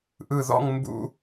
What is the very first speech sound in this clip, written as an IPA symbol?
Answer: ʔ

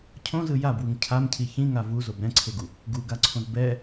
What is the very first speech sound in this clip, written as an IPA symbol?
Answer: cʰ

